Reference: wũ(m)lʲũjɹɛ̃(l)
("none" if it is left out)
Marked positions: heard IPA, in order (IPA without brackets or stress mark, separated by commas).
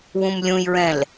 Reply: m, l